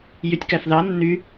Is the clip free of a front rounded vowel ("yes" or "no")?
no